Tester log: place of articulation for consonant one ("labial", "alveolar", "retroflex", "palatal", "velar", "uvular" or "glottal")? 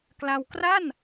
velar